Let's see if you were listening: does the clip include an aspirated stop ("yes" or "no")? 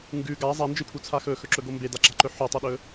yes